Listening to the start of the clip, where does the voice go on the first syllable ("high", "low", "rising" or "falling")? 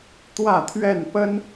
falling